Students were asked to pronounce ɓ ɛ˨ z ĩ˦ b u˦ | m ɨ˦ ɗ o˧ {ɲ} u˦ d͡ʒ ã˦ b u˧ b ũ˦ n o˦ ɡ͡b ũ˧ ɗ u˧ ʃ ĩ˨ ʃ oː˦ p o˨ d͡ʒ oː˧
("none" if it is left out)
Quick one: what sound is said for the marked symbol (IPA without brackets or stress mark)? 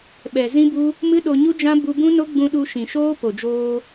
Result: ɲ